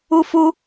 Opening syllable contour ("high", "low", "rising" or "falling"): high